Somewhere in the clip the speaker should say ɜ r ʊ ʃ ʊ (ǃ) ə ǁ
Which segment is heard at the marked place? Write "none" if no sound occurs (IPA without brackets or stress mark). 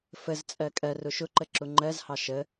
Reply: ǃ